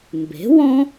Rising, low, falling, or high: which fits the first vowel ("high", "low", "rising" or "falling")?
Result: rising